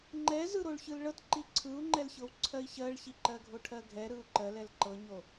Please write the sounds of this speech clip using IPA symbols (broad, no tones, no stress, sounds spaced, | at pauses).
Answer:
ŋ͡ǃ ɛ z ɯ ɾ o ɭ ç ɯ l ɭ ɤ t ǃ i ǀʰ ɯ u̯ ŋ͡ǃ ɛ l ç ɤ w ǀʰ ɜ i̯ ç ɜ ɭ ç i ǃ ɜ ɡʱ o ʈʰ ɜ ɡʱ ɛ ɾ ɯ u̯ ǃ ɜ l ɛ l ǃ ɤ ɲ o